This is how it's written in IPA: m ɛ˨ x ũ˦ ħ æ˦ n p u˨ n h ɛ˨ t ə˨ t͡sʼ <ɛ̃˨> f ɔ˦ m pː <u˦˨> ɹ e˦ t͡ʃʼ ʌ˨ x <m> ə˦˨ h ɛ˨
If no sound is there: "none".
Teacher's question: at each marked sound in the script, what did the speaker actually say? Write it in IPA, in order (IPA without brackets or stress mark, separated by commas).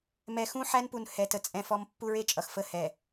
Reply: ɛ̃˨, u˦, f